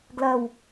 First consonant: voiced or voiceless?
voiced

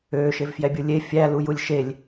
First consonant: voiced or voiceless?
voiceless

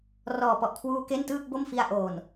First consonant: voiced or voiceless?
voiced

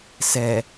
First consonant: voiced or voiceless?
voiceless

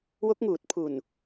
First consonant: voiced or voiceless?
voiced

